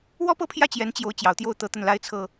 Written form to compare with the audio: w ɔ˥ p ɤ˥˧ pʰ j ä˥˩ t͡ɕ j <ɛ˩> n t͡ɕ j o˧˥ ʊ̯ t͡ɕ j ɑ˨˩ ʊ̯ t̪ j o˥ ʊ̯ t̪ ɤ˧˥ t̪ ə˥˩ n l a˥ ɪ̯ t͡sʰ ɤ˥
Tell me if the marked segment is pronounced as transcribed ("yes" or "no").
no